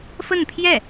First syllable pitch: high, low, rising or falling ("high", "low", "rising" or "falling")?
falling